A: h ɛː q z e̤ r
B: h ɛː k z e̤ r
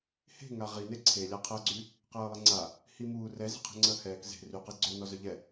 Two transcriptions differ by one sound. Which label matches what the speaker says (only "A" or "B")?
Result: B